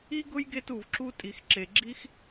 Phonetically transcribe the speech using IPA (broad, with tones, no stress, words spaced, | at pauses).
i˥ ɡʊ˥jɡe˦t u˩vǁu˦ tʼi˩x ǁe˩ɡ͡ǁi˦x